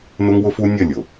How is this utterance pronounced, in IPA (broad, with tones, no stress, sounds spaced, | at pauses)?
n ʊ˦ ŋ w ʊ˦ f u˦ nʲ ə˦˨ lʲ ʊ˨